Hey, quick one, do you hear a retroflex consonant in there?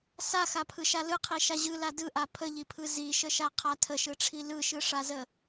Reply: yes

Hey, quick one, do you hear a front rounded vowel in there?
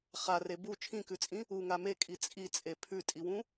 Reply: no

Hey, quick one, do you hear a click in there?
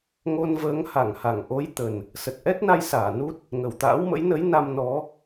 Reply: no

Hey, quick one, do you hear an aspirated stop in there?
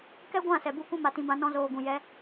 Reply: no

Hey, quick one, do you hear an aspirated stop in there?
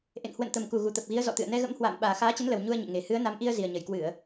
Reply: no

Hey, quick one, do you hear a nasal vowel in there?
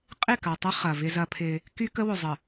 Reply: no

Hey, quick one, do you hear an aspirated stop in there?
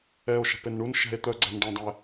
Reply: no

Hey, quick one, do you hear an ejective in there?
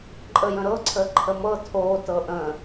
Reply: yes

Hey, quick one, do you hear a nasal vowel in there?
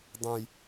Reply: yes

